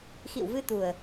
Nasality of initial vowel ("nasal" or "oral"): oral